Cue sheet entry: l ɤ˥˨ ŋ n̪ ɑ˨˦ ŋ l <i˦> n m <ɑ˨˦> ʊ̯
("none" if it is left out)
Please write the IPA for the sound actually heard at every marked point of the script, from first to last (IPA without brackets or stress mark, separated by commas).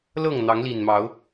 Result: i˨˩, ɑ˨˦